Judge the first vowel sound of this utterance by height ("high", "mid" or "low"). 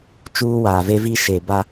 high